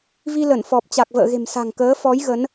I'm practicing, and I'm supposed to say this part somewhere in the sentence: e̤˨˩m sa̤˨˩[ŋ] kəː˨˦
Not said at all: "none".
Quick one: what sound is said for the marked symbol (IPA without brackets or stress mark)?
ŋ